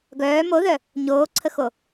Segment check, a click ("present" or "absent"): present